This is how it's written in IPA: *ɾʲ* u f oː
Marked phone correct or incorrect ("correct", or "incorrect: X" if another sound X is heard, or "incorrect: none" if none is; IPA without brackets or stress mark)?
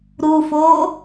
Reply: incorrect: ɾ